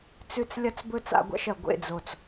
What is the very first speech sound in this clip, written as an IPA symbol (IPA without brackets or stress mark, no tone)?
t͡s